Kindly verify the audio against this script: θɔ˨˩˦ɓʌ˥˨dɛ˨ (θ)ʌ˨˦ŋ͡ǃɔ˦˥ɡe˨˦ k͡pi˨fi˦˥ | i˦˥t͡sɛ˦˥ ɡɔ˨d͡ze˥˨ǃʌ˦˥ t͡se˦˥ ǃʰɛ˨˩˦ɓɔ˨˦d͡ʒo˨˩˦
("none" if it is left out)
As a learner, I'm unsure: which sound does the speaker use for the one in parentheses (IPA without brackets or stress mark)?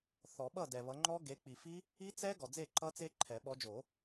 β